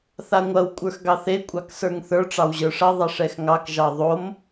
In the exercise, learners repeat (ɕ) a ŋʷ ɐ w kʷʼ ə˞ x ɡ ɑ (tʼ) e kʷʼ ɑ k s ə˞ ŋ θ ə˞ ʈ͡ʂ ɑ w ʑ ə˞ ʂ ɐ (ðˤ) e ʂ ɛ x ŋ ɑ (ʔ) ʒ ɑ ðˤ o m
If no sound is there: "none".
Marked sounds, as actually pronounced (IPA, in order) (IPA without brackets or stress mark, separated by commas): θ, θ, ðˤ, k